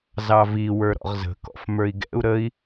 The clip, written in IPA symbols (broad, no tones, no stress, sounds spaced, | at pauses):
z ɑ v i w ə˞ ɾ ɔ̰ ʁ z ə̤ k ɔ̰ f m ə˞ i̯ ɡ ɛ̰ u̯ ɾ ə i̯